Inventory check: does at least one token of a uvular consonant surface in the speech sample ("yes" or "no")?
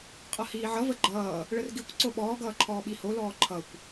yes